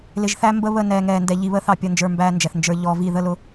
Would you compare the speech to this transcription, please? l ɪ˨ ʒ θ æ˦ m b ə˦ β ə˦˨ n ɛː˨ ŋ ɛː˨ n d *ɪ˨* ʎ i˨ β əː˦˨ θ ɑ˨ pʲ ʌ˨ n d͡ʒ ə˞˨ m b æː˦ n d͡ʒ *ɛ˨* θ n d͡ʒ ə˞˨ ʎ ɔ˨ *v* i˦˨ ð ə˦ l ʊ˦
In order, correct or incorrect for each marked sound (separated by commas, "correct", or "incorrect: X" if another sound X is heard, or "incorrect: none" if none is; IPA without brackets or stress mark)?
incorrect: ɛ˨, correct, correct